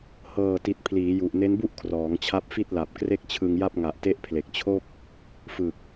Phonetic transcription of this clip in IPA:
h ɤː˨˩ t i˨˩ t̚ pʰ l iː˩˦ j u˨˩ ʔ n e˦˥ n b u˥˩ ʔ kʰ r ɔː˩˦ ŋ t͡ɕʰ a˦˥ p̚ f i˥˩ t̚ l a˨˩ p̚ k r e˥˩ k̚ t͡ɕʰ ɯ˧ ŋ j a˥˩ p̚ ŋ a˨˩ ʔ t e˦˥ ʔ pʰ l e˨˩ k̚ t͡ɕʰ o˥˩ k̚ | f ɯ˨˩ k̚

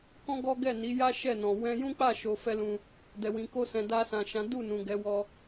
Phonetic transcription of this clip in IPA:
k ɔ̃˦ ɡ ɔ˦ ɡ ɛ˦˨ n i˨˦ j a˦ ʃ ɛ˦˨ n ɔ̃˨ w ɛ̃˧ j ũ˦ k͡p a˦˨ ʃ o˧ f ɛ˦ l ũ˧ | d ɛ˨ w ĩ˨ k o˧ s ɛ̃˨ d a˧ s ã˨ ʃ ã˨˦ d u˦˨ n ũ˨ ɡ ɛ˨˦ w ɔ˧

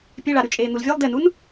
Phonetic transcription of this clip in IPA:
pʲ e ɭ a ɾ ʉ t͡ʃʼ eː n̪ u l vʲ ʉ lˠ d e n u n

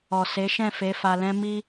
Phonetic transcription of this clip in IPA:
ɔ˨ s e˨˦ ʃ ɛ̃˦˨ f e˨˦ f a˧ l ɛ̃˦ m i˦

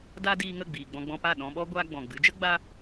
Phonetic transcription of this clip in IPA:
d a˦ d iː˧ ŋ ə˦˨ ɡ͡b iː˨ ɡ͡b ɔ̃˧ ɡ͡b ɔ̃˧ p a˦˨ ɗ ɔ̃˧ ɓ ɔ˦ ɡʷ a˧ ɡ͡b ɔ̃˨ ɡ͡b ɨ˨˦ d͡ʒ ə˦ ɡ͡b a˦

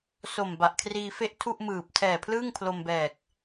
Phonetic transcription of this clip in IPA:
s o˨˩ m b a˨˩ ʔ kʰ r iː˧ f e˥˩ ʔ tʰ u˥˩ ʔ m ɯː˨˩ p̚ tʰ ɛː˨˩ pʰ l ɯː˥˩ ŋ pʰ l o˧ m b ɛː˨˩ k̚

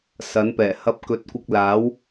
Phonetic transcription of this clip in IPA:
s ɐ˨˥ n p ɛː˨˩ h ɐ˥ p̚ k ɵ˨˥ t̚ kʷ ɪ˧ k̚ l aː˨˥ w

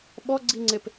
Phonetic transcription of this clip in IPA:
ɓ ɔ ɡ͡ǀ i ŋ͡ǀ e p

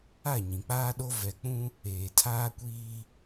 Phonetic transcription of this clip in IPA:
a˦˨ ɲ ĩ˨ k͡p aː˦ ɗ o˦ v ɛ˨ k͡p ũ˦ | eː˨ tʰ aː˦ kʷ iː˦

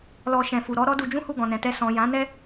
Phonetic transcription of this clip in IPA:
l ɔ˨ ʃ ɛ̃˨ f u˨ ɾ ɔ˨˦ ɾ ɔ˦ d u˧ d͡ʒ ũ˦ h u˦˨ ɡ ɔ̃˨ n ɛ̃˨ t ɛ˧ s ɔ̃˨ j ã˨˦ n ɛ˦

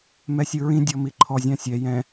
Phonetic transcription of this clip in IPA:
m ɛ sʲ ɯ ɹ ĩ dʲ ɔ m i ǃʰ ɔ zʲ ã sʲ ɛ j ɛ̃

